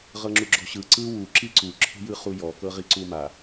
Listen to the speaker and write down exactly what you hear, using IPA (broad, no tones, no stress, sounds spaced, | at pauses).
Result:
ʁ ɤ ŋ͡ǁ u ɡ͡ǁ ɔ̤ ɕ ɯ ǀ ɯ w u ǁ i ǀ u ǁʰ e̤ j ɯ χ u j ɔ k ɤ ʁ i ǀ u m a